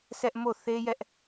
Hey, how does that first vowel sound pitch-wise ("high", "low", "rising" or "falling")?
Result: high